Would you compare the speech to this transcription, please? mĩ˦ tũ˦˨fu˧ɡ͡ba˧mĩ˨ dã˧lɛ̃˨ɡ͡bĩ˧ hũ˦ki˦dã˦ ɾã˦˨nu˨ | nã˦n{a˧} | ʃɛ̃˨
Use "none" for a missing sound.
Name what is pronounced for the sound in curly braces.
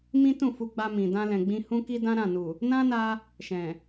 a˧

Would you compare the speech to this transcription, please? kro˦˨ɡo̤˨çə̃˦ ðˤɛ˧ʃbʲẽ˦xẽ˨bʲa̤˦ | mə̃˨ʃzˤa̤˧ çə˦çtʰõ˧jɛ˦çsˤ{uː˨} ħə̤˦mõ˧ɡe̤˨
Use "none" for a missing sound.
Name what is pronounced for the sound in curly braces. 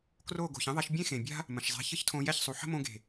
u˨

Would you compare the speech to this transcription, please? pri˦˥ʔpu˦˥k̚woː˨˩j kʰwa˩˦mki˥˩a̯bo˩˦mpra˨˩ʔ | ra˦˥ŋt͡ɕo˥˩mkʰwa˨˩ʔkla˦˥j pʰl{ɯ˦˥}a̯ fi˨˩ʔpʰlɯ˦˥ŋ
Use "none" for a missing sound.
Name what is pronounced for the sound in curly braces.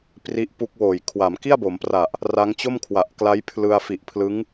ɯ˧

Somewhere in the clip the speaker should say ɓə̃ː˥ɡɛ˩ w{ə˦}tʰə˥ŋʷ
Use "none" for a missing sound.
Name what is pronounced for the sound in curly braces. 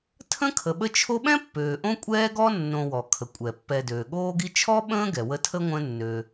ə˦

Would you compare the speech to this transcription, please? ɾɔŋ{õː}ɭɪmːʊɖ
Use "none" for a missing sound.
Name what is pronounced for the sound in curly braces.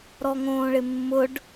õː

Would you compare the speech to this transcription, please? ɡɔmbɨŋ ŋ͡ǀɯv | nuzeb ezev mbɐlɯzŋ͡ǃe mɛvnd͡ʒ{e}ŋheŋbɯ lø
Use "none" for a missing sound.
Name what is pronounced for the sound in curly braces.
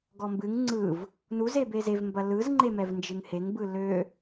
ɨ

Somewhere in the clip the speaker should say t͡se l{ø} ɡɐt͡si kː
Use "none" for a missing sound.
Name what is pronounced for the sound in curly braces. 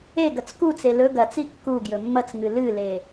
ɵ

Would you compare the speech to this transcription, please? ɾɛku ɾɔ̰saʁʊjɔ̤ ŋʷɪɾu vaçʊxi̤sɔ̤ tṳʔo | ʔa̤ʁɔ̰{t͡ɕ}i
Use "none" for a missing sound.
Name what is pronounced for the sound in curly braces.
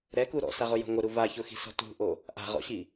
ɕ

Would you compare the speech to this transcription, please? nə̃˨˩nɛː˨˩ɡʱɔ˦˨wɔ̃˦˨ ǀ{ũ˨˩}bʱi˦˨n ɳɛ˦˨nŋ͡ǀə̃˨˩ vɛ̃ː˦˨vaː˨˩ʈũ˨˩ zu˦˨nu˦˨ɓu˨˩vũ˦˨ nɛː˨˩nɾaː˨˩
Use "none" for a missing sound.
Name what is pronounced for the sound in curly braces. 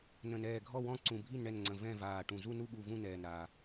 ũ˨˩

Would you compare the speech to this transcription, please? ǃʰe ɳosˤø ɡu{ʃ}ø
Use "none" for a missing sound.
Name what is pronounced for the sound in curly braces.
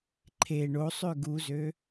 z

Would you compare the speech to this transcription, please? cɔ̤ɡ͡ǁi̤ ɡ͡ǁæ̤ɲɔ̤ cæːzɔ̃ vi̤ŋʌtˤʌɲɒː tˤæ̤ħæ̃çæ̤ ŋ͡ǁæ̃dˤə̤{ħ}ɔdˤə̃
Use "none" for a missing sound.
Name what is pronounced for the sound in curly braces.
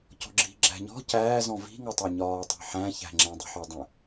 ħ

